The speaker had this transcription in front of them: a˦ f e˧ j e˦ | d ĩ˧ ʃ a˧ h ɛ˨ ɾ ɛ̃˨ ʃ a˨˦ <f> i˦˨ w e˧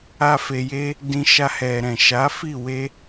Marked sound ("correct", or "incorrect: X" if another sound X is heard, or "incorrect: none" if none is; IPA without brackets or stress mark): correct